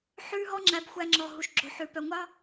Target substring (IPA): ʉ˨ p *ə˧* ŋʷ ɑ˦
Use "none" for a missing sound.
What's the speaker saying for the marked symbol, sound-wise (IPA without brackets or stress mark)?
œ˧